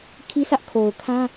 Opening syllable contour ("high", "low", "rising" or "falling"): high